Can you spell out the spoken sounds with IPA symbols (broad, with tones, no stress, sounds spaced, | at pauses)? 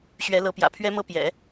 ɕ ɥ ɛ˧˥ l ɤ˧˥ p j ä̰˨˩ pʰ ɥ ɛ˥ m ɤ˥ p j ɛ̰˨˩˦